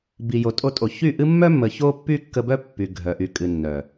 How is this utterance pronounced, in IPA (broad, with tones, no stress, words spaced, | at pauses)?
bi˨jo˨tʼo˧tʼo˨ çy˦˨ʔɨ˦ mːœ˦mːə˨ ço˦pːy˦kːə˧bœ˦ pːy˨ɡʱœ˨ʔy˨ kʼɨ˨ nːœ˨